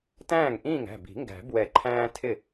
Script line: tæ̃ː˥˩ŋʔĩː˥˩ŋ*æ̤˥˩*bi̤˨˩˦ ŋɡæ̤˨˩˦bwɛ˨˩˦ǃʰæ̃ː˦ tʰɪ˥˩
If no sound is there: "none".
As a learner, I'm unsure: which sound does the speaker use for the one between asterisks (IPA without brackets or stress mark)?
æ̤˥˩